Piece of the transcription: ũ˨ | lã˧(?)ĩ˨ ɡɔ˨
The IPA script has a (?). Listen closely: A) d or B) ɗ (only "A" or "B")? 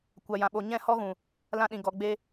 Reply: B